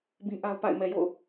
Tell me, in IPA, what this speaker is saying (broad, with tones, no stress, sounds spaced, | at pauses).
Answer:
b ĩ˦ ʔ a˦ ʊ̯ p a̰˦˨ ɪ̯ m ɛ˨ j o̰˦˨ ʊ̯